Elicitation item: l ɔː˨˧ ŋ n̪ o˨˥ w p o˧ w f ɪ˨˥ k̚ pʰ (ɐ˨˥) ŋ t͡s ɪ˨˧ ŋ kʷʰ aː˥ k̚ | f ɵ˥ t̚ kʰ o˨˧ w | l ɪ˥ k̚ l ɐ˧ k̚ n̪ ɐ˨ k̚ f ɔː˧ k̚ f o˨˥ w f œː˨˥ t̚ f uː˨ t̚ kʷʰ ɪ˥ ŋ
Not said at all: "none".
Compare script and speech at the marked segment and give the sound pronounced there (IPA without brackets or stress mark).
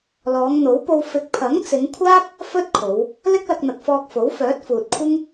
ɐ˨˥